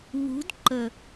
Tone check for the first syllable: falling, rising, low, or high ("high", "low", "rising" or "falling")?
rising